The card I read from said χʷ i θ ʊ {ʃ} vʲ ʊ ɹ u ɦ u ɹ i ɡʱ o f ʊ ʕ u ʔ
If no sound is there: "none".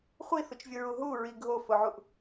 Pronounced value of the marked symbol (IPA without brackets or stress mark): t͡ʃ